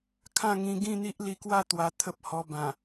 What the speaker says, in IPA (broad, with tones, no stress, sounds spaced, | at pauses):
kʰ ã˥˧ ŋ ĩ˧ ɡ ĩ˥˧ n̪ i˦ ʔ l i˧ k w a˥˧ t̪ w a˧ t̪ʰ ə˦ p̚ h ɔ˧ b ã˨˩